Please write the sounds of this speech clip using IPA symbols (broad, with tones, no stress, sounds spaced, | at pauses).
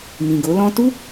m ĩ˨ ɡ o˨˦ l ɔ̃˦ t u˦